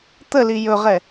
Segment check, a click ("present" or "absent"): absent